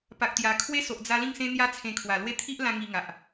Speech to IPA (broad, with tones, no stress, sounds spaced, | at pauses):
p a˨ k̚ t̪ j a˨˩ kʰ w e˦ s o˨ ʔ d͡z a˧ l ĩ˥˧ ŋ s ẽ˦ n̪ j a˦ t͡sʰ ẽ˧ kʰ w a˨˩ l w e˥˧ t̪ʰ i˦ ʔ l ã˦ ŋ i˧ ŋ a˨ ʔ